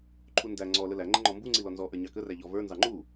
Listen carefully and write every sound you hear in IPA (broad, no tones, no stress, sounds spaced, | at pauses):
ǃʰ u n d æ ŋ͡ǀ ɔ l ə l æ ŋ͡ǃ ə ŋ͡ǃ ɔ m b u ŋ͡ǀ i l ɔ n z ɔ ʔ ə˞ ɲ ɑ k ə r æ ʎ ɔ v ə˞ n z ɑ ŋ͡ǃ u